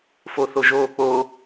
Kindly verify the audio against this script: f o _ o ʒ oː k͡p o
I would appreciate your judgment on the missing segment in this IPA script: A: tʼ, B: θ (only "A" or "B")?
B